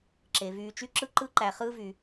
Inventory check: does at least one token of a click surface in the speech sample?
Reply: yes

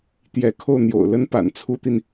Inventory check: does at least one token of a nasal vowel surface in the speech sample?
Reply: no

